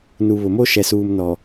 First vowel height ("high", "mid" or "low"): high